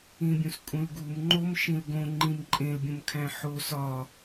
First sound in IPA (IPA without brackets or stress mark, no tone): ĩ